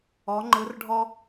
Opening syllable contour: rising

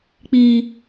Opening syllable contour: high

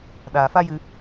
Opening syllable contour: low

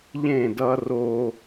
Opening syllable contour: falling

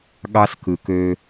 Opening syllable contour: high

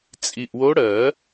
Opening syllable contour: low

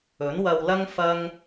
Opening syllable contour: rising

